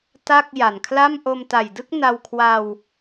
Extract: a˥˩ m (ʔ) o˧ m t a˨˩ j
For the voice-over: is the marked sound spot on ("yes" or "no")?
yes